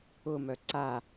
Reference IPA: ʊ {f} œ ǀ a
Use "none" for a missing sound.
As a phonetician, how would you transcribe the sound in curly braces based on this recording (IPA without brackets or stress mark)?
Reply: m